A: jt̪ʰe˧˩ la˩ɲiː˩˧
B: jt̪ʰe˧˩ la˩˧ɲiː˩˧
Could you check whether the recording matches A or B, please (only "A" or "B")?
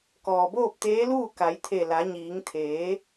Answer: B